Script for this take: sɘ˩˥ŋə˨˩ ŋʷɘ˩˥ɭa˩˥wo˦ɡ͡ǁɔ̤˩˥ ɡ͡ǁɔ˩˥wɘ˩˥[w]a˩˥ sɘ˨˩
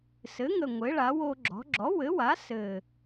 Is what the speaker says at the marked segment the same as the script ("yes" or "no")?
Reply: yes